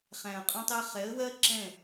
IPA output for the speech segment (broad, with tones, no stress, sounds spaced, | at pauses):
χ æ̃˨ ə̯ qʼ ɔ̃˧ tˤ ɜ˧ χ ɛ˨˦ ə̯ w ɜ˦ ǁ ɛ̃˦˨